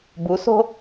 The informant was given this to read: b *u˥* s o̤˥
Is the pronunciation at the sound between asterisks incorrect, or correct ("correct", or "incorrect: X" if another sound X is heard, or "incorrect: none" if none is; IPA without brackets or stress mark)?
incorrect: u˩˥